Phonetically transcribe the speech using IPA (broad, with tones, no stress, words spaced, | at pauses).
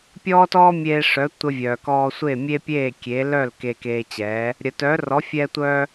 pʲɔː˥ tɔː˥mʲeː˧ʂœ˩˥ tʷə˧vʲœː˩ kɔː˧sʷeː˥˩mʲe˥ pʲeː˥˩kʲe˩˥ lœ˥˩l keː˧keː˧t͡ɕɛː˩˥ | ɾʲə˩tœː˩˥ rɔ˩˥fʲɛː˧tʷœː˧